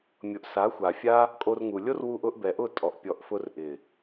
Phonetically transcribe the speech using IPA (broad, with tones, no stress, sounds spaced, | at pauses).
mʲ ʊ˨ ʔ s a˨˦ xʷ a˨ fʲ a˦ | kʼ o˧ r ŋ u˨ lʲ o˦ r w u˧ ʔ ʊ˨˦ ʔ b ɛ˨ ʔ ʊ˦˨ tʼ ɔ˨ ʔ pʲ ɔ˨ ʔ f ʊ˧ r ʔ ɪ˨